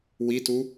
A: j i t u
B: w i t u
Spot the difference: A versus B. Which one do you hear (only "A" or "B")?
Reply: B